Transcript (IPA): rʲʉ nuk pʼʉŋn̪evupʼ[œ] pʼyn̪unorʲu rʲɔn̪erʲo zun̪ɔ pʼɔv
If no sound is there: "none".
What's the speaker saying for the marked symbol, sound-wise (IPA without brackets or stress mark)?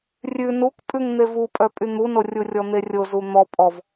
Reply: œ